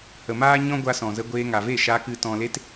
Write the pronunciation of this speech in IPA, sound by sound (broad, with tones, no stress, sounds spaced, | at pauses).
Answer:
h ə˨ m aː˦ ɲ ɔ̃˦ ɡʷ a˧ s ɔ̃˨ z ə˧ ɡʷ eː˧ ŋ a˨ v e˦˨ ʃ aː˧ k ɨ˨ t ɔ̃˨ l e˧ t